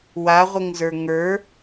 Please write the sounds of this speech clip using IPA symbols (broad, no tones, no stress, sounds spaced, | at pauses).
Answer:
w a ʁʷ ɘ ŋ z ə˞ ŋ ə˞